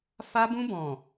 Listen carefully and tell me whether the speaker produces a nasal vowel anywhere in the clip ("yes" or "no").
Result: yes